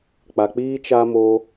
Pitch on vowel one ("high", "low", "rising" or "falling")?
low